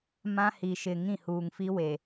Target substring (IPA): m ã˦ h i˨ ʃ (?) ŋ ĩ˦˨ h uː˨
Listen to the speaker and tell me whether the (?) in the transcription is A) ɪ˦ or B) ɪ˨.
B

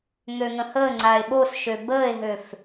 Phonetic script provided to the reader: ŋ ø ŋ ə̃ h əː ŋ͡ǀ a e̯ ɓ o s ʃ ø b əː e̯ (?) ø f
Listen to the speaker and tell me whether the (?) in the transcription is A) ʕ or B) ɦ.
B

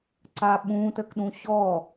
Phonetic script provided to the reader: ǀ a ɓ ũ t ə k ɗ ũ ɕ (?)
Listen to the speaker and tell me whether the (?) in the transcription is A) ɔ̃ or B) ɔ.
B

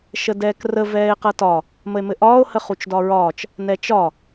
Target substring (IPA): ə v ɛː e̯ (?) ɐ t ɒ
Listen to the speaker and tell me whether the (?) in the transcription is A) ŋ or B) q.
B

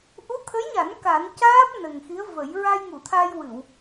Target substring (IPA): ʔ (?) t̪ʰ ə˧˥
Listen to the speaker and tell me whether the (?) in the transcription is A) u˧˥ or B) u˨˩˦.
A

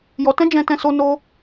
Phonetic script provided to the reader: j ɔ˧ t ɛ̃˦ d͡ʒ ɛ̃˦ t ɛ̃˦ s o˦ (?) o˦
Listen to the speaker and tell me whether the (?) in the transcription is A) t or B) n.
B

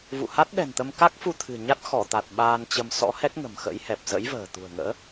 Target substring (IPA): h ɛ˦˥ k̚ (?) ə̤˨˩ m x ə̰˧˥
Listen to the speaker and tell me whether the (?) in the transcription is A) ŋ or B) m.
A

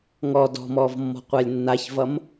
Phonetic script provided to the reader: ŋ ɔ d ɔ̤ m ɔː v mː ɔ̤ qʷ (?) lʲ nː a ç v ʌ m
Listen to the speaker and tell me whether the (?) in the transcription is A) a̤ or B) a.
B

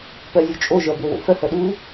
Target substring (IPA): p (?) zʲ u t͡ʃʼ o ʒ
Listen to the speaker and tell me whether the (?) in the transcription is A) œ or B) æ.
A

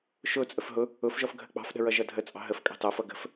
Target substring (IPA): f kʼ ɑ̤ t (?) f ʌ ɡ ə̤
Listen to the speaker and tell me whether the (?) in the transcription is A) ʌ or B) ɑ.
B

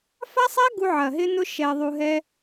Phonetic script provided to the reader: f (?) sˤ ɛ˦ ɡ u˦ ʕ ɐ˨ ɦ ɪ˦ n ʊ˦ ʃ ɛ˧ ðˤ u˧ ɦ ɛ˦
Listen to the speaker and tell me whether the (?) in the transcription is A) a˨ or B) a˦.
B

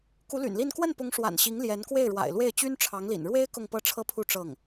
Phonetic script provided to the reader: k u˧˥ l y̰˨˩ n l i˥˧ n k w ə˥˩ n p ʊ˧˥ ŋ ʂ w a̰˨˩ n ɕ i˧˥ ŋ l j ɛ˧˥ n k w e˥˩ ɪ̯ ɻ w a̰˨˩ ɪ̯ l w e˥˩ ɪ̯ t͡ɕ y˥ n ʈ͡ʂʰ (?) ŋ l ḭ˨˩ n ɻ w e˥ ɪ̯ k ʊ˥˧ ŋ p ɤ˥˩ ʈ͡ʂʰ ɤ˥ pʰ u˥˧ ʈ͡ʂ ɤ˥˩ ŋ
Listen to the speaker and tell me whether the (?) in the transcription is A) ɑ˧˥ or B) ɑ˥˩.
A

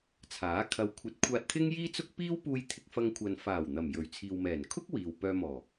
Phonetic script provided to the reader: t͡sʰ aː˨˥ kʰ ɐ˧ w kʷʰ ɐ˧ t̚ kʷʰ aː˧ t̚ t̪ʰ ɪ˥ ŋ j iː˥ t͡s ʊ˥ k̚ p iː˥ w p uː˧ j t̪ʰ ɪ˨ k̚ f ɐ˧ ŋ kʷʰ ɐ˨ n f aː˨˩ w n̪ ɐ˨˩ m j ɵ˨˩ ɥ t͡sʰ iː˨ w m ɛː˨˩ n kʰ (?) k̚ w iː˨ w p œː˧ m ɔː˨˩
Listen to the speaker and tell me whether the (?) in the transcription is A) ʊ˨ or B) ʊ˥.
B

